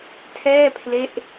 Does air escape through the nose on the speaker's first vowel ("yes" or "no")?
no